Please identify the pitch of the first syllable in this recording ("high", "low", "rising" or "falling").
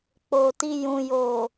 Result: low